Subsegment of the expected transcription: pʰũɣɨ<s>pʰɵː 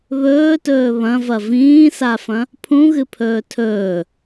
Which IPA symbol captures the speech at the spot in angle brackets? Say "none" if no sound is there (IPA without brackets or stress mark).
none